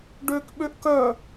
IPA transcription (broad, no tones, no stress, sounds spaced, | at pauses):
ɖ ø k ɓ ø ʔ k œ